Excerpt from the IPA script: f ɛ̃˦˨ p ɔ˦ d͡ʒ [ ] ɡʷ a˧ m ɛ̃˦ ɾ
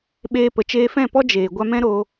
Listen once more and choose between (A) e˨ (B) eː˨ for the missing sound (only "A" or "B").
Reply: B